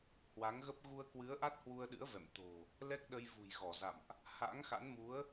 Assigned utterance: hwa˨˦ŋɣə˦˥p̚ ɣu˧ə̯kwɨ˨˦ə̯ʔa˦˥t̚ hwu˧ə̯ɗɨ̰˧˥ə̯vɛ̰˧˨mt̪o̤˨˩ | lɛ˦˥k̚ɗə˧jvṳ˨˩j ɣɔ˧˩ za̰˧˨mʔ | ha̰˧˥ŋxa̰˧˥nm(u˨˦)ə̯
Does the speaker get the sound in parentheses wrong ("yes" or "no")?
no